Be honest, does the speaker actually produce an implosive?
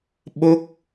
yes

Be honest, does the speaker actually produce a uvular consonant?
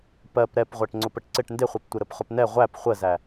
yes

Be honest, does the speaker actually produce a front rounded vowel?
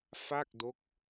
no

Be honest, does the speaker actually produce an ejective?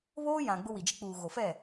no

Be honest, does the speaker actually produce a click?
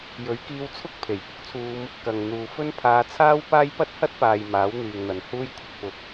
no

